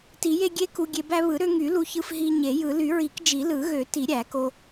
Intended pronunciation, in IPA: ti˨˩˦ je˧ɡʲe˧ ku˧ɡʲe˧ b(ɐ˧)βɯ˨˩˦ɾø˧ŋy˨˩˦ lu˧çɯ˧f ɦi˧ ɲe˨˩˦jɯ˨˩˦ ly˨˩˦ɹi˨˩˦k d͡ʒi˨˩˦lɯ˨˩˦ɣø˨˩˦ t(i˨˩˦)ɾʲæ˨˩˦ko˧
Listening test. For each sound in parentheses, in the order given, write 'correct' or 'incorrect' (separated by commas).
incorrect, correct